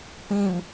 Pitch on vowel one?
falling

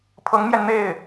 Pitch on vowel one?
rising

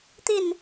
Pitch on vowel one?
falling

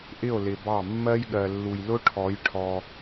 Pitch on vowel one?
falling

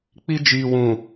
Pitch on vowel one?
high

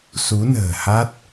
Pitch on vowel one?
rising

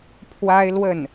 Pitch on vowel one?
high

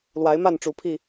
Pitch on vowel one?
rising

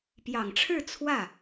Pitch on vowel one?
low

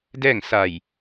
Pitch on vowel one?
falling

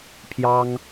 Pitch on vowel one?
high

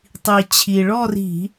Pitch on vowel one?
low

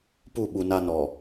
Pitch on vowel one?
falling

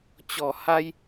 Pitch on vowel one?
low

